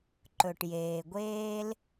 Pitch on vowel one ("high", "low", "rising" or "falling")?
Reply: low